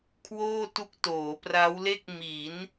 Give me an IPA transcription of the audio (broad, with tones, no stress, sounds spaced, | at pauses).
kʰ w oː˥˩ t u˦˥ k̚ t oː˩˦ p r a˦˥ w l e˥˩ k̚ m i˩˦ n